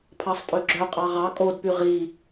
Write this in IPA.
pʰ ɑ sˤ tʼ ø ɡ͡ǁ œ qʼ ɑ ʁ ɑ kʼ o d p y ʁ i

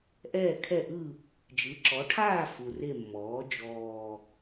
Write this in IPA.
ʔ ɛː˦˨ kʰ ɛ˦˨ ʔ ɯ˦˨ | d͡ʒ ɯ˩˧ ǁ ɔ˩˧ ʈʰ aː˦˨ f u˨˩ r e˦˨ mː ɔː˩˥ d͡ʒ ɔː˨˩

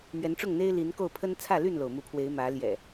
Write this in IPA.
m ɥ ɛ˨˦ n ʈ͡ʂ ʊ˥˨ ŋ n̪ e˦ ɪ̯ l i˨˦ n k o˥˨ ʊ̯ pʰ ə˦ n t͡sʰ ä˥˨ l y˥˨ n l o˩ ʊ̯ m u˨˦ pʰ w e˨˦ ɪ̯ m ä˨˦ l j ɛ̰˨˩

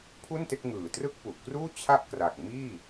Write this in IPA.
pʰ u˥˩ n t e˥˩ k̚ ŋ ɯː˨˩ t r ɯ˥˩ k̚ p u˨˩ ʔ k r uː˥˩ t͡ɕʰ a˥˩ ʔ k r a˨˩ k̚ m iː˥˩

